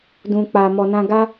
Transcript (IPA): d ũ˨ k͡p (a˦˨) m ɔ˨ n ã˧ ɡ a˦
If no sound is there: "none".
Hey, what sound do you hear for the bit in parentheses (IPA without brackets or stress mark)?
a˨